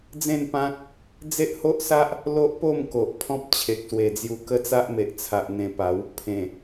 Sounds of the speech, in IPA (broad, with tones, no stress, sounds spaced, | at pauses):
d͡z ẽ˥˧ n p ã˦ k̚ | d͡z e˦ ʔ h o˦ ʔ s a˦ ʔ | l o˦ ʔ p o˥˧ m k o˨ ʔ pʰ ɔ̃˦ p̚ t͡ɕʰ e˨ k̚ s w e˨˩ d͡z j u˧ k ə˦ t͡s a˦ ʔ m e˨ ʔ t͡sʰ a˨ ʔ n̪ ẽ˧ p a˨˦ w | pʰ ẽ˨˩